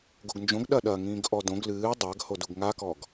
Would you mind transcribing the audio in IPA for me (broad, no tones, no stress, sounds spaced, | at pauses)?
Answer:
ɡ o ɡ n d͡ʒ õ ɡ ɗ ɐ ɗ ɐ ŋ ĩː ɡ ʔ ɔ d õ ɡ l ɨː dˤ a ɡ h o d u ɡ ŋ a k ɔ ɡ